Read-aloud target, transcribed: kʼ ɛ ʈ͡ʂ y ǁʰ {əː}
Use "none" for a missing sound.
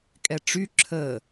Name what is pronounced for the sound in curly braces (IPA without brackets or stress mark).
əː